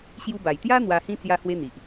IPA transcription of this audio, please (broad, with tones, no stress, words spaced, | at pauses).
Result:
ɕju˧ba˨˩jt̪ja˦ n̪wa˧hĩ˦ t͡sja˦hwe˦n̪i˨ʔ